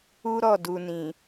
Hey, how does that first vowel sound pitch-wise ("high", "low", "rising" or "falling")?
high